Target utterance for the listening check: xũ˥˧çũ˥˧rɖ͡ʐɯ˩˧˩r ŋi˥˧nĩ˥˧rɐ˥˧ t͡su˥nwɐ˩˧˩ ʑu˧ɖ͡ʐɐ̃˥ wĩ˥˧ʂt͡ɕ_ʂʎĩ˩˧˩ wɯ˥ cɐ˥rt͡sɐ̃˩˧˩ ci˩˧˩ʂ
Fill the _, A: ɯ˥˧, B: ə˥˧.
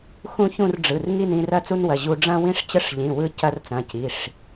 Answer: B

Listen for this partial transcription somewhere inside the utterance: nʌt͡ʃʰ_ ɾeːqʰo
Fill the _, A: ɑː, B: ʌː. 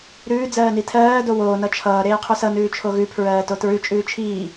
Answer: B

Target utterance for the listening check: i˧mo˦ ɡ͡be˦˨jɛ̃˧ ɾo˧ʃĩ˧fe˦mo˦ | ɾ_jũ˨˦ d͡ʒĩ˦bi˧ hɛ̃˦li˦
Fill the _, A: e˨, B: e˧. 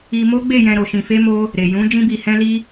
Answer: A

